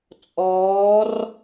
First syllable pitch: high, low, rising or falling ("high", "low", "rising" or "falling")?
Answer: rising